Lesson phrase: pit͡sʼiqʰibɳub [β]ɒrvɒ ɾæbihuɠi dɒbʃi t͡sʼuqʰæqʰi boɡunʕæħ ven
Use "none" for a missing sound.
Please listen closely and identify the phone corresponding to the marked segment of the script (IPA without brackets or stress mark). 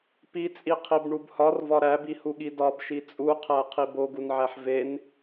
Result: h